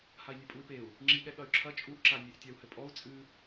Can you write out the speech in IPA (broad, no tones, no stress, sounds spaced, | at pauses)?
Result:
h a i̯ nʲ e pʼ u y̯ p e u̯ | ŋ͡ǁ i ɠ ɛ ɠ ɐ y̯ ǁʰ ɐ t͡ʃʼ u ʔ ǁ a nʲ e ʔ tʲ a u̯ h ɘ pʼ ɔ u̯ t͡sʼ ɨ